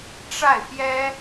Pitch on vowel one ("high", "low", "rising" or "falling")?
falling